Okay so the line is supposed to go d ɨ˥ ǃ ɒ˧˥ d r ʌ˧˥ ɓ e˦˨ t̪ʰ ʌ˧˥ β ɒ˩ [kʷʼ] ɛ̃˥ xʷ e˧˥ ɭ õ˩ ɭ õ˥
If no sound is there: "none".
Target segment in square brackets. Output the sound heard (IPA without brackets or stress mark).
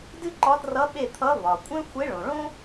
kʷʼ